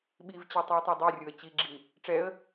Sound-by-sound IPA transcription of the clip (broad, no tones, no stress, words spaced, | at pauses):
ɓivt͡ɕe tˤuə̯tˤɛdˤɛrʲoə̯ t͡ɕiɡ͡ǁi | ʈ͡ʂɛə̯